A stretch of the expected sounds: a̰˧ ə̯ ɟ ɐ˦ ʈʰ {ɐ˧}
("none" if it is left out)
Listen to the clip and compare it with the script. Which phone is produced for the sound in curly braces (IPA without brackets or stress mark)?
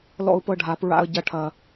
ɐ˧